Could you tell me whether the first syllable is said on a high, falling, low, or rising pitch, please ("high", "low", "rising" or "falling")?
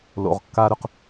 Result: low